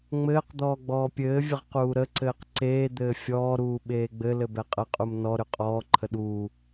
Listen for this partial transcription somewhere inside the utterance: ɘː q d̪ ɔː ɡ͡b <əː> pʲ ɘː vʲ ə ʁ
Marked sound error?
yes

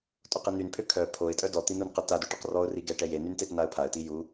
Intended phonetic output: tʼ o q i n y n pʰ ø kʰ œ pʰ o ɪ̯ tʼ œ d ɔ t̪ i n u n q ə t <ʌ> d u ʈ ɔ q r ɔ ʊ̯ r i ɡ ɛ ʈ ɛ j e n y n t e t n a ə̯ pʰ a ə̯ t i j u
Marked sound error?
yes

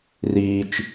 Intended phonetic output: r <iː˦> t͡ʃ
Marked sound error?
no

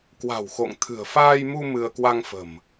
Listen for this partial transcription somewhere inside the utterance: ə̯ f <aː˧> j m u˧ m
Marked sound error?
no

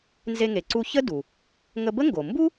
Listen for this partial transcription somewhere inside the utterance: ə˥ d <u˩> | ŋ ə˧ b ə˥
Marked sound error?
no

